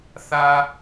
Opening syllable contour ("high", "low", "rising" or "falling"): high